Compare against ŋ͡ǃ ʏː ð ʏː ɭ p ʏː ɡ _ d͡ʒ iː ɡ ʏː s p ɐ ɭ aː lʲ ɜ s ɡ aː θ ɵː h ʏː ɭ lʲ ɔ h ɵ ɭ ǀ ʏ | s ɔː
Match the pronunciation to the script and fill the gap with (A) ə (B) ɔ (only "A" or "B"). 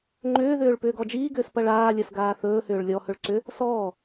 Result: B